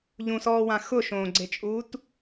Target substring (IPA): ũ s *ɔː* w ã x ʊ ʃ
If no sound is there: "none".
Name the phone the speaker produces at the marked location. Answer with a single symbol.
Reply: ɔː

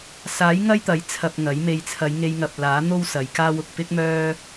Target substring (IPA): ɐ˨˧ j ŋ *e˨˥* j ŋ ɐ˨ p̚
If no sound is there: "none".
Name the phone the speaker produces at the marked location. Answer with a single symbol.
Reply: e˧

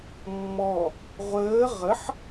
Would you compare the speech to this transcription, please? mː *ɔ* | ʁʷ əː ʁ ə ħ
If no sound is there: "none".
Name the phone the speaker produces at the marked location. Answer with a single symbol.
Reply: ɔ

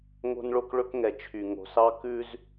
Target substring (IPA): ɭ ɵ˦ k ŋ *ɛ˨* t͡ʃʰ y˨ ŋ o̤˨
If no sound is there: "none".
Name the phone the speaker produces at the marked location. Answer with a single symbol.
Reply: ɛ˨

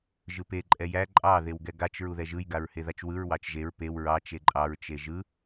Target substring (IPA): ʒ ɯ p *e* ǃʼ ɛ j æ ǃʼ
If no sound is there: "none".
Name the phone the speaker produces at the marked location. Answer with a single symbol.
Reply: e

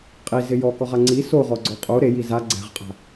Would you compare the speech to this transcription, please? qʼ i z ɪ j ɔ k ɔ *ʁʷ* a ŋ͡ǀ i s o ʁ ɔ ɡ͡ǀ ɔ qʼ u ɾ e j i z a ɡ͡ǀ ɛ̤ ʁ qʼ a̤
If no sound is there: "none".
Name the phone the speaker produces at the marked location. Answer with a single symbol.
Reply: ʁ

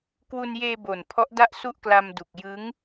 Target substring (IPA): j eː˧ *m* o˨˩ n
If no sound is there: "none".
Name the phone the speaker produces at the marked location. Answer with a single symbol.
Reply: b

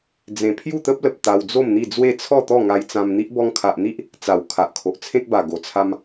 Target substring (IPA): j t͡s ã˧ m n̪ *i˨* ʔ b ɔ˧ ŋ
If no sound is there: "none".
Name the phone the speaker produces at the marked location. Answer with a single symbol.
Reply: i˦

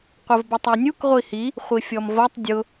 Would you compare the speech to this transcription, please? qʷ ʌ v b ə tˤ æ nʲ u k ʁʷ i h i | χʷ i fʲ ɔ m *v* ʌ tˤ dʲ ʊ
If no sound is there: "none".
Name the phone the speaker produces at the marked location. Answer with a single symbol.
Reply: v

